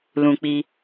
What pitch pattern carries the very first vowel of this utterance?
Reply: low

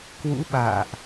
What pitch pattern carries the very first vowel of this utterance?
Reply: rising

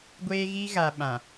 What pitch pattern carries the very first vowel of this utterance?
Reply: high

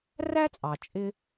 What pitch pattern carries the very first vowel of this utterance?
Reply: high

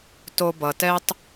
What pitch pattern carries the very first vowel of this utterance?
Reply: high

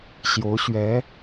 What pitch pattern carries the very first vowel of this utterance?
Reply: rising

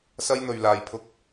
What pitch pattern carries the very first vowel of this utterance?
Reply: high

